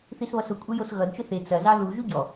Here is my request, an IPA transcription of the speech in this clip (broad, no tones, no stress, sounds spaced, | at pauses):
θ i s β ʌ s ʊ kʷʼ e j o s ɣ ʌ d t͡ʃ ʊ θ e t͡s ɐ z ɑ ð u ʒ u ɟ ɔ